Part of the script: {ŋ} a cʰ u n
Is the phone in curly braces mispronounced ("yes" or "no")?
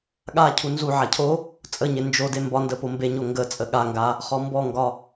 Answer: yes